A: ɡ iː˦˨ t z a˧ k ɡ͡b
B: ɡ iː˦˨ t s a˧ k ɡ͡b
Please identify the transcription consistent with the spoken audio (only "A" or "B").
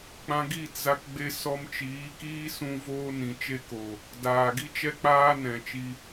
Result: A